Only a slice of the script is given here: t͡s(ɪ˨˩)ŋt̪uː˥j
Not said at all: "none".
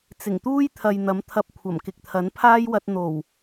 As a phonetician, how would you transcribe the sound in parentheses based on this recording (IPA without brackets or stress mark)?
ɪ˨˩